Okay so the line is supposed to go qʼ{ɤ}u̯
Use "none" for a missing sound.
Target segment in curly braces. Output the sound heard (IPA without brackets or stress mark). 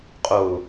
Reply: o